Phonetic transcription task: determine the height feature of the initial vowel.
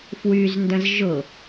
high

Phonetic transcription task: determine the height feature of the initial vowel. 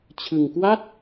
high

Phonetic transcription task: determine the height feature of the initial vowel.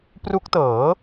high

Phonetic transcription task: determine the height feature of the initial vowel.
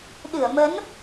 high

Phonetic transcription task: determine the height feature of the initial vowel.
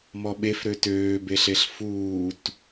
mid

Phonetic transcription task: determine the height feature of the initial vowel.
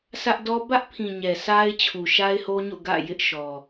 low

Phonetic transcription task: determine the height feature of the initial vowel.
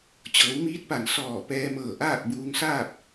mid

